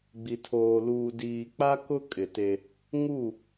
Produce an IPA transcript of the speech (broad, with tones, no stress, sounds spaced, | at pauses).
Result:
ɡ͡b i˨ tʰ oː˨ l uː˨ d iː˨ k͡p a˦ k ʊ˦ kʼ ɪ˨ t e˦ | ŋ u˦˨